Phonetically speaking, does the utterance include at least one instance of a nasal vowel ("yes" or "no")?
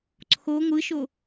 no